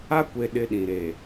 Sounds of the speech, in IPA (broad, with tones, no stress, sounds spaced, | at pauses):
a˦ kʷ e˨ ɗ ɪ˦ ɗ ĩ˨ ɾ e˨